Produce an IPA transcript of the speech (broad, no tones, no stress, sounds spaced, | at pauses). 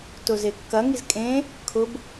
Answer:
t ʊ z e kː ɐ ŋ i z kʼ ẽ | kʰ ʊ b